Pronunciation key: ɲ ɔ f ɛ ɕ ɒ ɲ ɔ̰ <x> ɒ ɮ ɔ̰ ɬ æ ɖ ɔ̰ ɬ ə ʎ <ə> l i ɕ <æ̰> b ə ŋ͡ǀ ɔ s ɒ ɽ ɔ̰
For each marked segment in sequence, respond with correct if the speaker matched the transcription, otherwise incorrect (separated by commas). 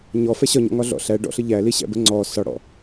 incorrect, incorrect, correct